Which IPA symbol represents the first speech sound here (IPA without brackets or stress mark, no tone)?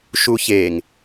ʃ